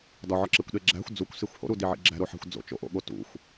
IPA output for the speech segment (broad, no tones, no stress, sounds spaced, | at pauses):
d ɒ ʕ ɒ ǁ e kʷ ɗ e ɡ͡ǁ æ̤ xʷ d͡z u kʷ s i xʷ h o̰ ɾ u d i ʕ ḭ ɡ͡ǁ æ̤ ɾ o ħ æ̤ xʷ d͡z o̰ t͡ʃ o̰ ʔ o̰ ɠ o t ṵ xʷ